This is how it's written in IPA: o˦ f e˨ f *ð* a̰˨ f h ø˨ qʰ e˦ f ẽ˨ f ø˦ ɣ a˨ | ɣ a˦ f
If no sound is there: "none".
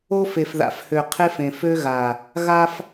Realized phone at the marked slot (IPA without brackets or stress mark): ð